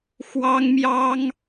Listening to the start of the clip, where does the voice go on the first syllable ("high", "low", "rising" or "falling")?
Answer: high